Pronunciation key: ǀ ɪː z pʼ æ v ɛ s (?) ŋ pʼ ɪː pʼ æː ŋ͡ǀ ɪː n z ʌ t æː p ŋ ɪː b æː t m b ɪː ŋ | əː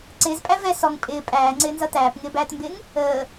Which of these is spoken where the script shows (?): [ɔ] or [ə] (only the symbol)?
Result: ɔ